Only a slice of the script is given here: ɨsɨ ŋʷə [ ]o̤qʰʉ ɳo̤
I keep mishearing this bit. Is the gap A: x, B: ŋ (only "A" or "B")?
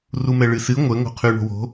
B